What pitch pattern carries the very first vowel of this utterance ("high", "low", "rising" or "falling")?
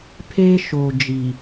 high